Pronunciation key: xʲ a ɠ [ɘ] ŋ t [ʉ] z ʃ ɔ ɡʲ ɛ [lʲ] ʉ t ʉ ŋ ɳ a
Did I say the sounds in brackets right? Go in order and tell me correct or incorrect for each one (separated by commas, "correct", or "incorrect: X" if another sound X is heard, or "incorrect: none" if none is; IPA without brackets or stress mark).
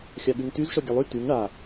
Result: incorrect: ʉ, correct, incorrect: lˠ